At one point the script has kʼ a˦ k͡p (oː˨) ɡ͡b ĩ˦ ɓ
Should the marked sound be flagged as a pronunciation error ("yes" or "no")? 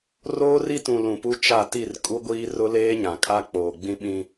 no